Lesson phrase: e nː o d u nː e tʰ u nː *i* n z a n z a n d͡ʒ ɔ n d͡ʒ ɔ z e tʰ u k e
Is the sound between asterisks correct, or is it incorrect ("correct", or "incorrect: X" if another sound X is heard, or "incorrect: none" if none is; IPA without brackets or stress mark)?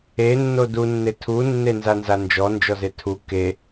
incorrect: e